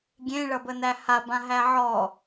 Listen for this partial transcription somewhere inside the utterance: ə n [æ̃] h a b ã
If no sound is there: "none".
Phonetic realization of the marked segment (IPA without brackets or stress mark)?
æ